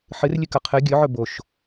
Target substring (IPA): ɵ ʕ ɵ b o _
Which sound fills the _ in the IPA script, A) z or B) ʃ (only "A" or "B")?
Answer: B